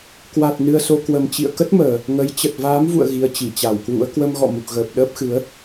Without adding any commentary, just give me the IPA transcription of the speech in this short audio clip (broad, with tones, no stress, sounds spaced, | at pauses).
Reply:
k w a˨˩ t̚ n ɨ˧ ə̯ s o˧ k w ə˨˩ m t͡ɕ ḭ˧˨ ə̯ k ə˦˥ t̚ m əː˨˩ | ŋ ə˨˦ j t͡ɕ ə˨˩ t̚ v aː˨˦ m v ṵ˧˨ ə̯ ɣ i˨˦ ə̯ t͡ɕ i˧˩ t͡ɕ a˧˩ w k w ṵ˧˥ ə̯ k w ə˧ m ɣ ɔ̰˧˨ m u˨˩ k̚ ɣ əː˨˩ p̚ ɗ əː˦˥ p̚ x ɨ˨˦ ə̯